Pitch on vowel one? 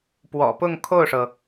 low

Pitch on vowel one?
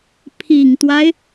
low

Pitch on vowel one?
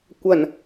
low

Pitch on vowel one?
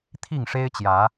falling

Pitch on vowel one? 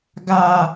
high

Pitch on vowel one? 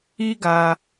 high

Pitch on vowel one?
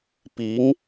rising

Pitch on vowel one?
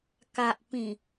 low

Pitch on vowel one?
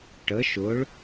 rising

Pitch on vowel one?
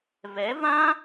rising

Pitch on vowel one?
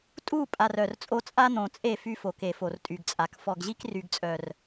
falling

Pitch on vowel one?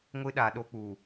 high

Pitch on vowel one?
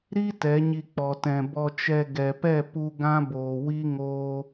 high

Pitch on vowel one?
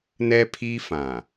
high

